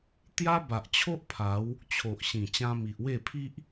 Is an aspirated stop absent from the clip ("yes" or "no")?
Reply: no